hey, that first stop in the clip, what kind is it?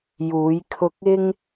aspirated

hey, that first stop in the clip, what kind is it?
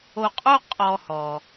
ejective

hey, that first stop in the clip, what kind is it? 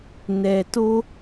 plain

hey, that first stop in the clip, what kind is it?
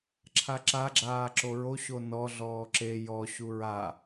click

